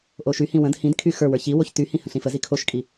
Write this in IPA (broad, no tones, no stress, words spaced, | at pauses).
ʔoʃyhĩ wə̃d hĩdkʰy xə˞wə˞ çiwoç tyhĩ hə̃ɬĩfəzi kʰoʃkʼi